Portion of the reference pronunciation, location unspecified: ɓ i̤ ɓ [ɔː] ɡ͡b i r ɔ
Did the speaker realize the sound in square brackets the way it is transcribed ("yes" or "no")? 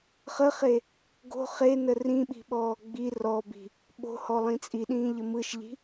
yes